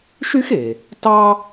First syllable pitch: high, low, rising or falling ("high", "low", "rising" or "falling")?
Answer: high